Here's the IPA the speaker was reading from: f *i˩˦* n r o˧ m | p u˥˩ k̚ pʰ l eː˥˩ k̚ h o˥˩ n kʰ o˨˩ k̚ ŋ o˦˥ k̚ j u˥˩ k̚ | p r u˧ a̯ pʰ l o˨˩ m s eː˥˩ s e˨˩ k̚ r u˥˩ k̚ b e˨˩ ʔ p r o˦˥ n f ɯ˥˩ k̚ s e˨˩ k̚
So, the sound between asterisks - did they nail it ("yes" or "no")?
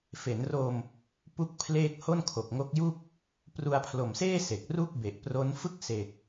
no